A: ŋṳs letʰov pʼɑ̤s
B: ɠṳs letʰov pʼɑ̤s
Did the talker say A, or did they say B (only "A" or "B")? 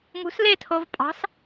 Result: A